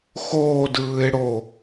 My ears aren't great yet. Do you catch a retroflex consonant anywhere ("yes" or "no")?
yes